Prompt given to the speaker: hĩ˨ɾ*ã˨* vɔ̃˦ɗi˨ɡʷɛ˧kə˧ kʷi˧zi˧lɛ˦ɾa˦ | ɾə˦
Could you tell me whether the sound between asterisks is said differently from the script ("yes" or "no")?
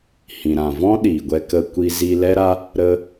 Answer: no